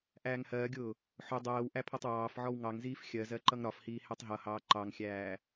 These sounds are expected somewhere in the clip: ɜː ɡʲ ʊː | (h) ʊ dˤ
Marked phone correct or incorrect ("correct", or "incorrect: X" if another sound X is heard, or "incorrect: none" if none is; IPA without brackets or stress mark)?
incorrect: ħ